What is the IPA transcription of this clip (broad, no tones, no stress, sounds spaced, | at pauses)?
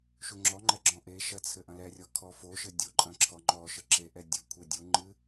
ʃ u ŋ͡ǁ ɔ ŋ͡ǃ ɛ ɡ͡ǁ ɔ̃ ʔ e ʃ ɐ t͡sʰ ɘ ʔ ɐ̃ l ɛ rʲ ɔ kʰ ɔ f o ʃ ɘ dʲ o ǃʼ ɐ̃ ǁʰ ɔ ŋ͡ǃ ɔ ʃ ɘ ǁ e ʔ ɛ dʲ ɘ kʷʰ e dʲ u ŋ͡ǃ ɨ